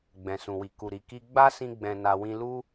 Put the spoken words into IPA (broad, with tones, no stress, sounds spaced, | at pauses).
ɡ͡b ɛ̃˨ s ũ˨ w i˨ k u˨ ɾ i˨ k i˧ ɡ͡b a˦ s ĩ˦ ɡ͡b ɛ̃˧ n a˧ w ĩ˧ l u˦